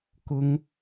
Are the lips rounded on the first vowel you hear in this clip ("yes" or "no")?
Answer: yes